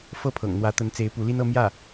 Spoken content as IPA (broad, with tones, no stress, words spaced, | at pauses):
fɤ˥˩pʰɤ̰˨˩ŋn̪wä˧˥t̪ə˧˥n t͡se˧˥ɪ̯pu˧˥li˥nɤ˥ mjä˥˩